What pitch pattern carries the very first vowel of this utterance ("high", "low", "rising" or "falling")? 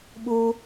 high